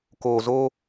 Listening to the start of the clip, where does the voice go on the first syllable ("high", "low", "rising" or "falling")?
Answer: low